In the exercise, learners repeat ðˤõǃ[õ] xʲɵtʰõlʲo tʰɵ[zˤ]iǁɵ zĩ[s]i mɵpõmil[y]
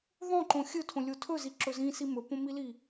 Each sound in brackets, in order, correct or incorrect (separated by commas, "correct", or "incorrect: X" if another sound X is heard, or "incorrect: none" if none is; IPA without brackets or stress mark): correct, incorrect: z, correct, incorrect: i